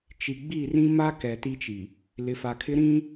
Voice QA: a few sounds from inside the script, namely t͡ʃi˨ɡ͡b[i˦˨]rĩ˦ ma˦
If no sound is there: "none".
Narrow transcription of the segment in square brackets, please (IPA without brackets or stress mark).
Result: i˦˨